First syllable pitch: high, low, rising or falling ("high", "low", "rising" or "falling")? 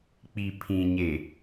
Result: low